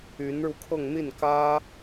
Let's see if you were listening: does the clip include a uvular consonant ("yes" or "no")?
no